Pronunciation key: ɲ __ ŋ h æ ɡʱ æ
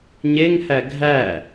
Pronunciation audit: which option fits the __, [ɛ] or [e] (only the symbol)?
e